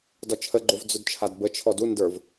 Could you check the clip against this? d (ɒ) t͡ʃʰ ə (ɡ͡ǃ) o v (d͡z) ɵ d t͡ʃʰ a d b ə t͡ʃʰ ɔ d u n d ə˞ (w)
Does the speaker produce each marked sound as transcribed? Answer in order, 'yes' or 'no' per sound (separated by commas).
yes, yes, yes, no